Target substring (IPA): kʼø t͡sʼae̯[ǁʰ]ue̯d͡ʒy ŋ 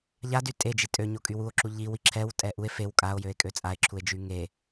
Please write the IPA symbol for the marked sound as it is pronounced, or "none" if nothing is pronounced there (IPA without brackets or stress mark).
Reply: ǁʰ